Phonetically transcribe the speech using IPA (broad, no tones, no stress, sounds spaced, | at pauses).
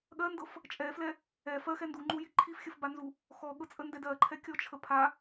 ɠ ɜ n d ɤ f | t͡ʃʼ ɛ f l ɛ | ɛ f ɜ x ɛ n d u ŋ͡ǃ u j i ǃʰ i f xʲ ə f b a n z u | x ɔ ɠ ɤ t͡sʼ ə n d ɛ d ɜ ǃʰ ɛ kʲ ɔ t͡ʃʰ ə pʰ a